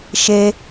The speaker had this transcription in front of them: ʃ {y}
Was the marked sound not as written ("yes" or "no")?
yes